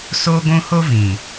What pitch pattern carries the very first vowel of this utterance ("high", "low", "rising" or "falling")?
high